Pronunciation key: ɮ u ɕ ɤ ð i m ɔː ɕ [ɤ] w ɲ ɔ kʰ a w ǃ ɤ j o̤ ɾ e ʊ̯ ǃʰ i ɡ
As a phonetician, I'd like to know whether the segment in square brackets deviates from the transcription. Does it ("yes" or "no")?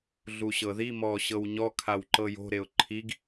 no